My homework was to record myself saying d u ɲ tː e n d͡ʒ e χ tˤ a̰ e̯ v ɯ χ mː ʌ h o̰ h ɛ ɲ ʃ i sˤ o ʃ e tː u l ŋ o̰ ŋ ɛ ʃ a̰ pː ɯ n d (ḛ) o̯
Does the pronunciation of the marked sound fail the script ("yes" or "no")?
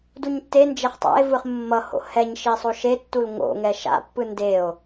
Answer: yes